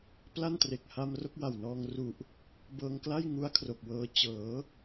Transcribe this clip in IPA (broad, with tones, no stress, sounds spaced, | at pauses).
p l a˥˩ n t r e˨˩ k̚ h a˧ m r o˥˩ k̚ w a˨˩ w n ɔː˧ ŋ r u˨˩ ʔ | b ɤː˧ ŋ k l a˥˩ j ŋ u˦˥ a̯ kʰ r o˨˩ k̚ w ɤː˧ t͡ɕ ɤː˩˦